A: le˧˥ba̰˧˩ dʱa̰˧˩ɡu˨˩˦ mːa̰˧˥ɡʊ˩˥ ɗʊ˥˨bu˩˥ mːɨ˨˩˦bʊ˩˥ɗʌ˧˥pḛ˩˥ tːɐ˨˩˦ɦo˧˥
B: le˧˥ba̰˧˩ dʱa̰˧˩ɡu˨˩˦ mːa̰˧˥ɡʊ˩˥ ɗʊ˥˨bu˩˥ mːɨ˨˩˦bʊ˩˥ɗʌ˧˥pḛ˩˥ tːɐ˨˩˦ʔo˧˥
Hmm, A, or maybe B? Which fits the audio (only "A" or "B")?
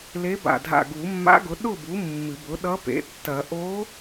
B